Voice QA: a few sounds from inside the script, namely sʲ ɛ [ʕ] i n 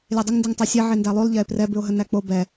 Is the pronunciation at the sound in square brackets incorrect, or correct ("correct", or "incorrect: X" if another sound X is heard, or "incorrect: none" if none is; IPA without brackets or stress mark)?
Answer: correct